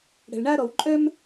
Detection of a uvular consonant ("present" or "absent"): absent